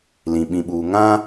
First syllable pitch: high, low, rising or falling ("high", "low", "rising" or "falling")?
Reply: low